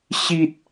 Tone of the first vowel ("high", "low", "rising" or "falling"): high